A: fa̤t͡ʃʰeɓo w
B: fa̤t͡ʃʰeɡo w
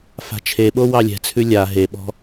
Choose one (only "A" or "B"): A